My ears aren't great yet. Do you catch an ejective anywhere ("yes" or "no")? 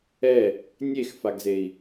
no